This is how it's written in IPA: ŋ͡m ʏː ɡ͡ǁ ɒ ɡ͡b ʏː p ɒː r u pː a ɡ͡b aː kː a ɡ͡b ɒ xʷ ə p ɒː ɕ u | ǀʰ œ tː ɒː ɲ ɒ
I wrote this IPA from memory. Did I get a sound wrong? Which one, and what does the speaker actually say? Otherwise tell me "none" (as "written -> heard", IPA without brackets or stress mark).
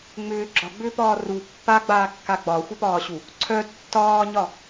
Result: none